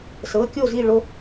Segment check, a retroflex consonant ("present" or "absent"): present